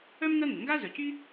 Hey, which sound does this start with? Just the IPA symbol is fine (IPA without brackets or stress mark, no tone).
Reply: œ